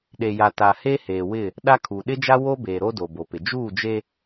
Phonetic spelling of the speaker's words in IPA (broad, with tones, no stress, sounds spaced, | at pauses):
ɗ e˨ j a˨ t a˨ h e˦ h eː˨ w ɪ˦˨ | ɗ a˦ kʰ u˨ ɗ ɪ˦ d͡ʒ a˦ w o˦ b eː˨ ɾ o˦ d o˨ b o˨ p ɪ˨ d͡ʒ uː˦˨ d͡ʒ e˦